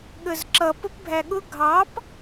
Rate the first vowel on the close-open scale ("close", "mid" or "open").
mid